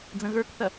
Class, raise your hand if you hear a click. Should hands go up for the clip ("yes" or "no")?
no